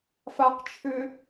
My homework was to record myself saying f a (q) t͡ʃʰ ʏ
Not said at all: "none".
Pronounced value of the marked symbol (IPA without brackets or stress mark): q